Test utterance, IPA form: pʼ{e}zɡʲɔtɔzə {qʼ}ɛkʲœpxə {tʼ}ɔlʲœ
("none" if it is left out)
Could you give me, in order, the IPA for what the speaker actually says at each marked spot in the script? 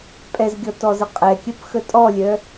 ɛ, qʼ, tʼ

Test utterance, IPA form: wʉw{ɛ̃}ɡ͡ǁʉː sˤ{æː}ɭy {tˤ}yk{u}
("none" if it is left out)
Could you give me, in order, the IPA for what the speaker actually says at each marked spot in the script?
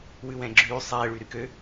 ɛ̃, ɛː, ɾ, ø

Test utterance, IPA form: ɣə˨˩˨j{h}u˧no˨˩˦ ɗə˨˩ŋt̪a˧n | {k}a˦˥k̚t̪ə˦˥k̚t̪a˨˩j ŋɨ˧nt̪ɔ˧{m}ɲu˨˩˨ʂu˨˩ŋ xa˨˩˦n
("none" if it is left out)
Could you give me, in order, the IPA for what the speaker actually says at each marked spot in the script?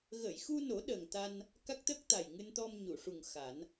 x, k, m

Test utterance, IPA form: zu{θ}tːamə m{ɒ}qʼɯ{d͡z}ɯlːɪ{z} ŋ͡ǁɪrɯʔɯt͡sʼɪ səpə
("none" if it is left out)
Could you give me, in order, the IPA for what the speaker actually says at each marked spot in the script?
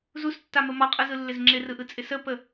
s, ɒ, z, z

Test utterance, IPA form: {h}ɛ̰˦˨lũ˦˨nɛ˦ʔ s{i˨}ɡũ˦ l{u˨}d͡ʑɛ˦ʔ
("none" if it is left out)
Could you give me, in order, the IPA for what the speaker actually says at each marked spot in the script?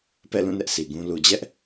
p, i˨, u˨

